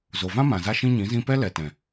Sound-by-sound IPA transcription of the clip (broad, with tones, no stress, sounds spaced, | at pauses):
z o˨ v ã˦ m ã˨ z a˦ ʃ ĩ˦ ɲ ĩ˨˦ z ĩ˦ p ɛ˦ l ɛ˨ t ɛ̃˨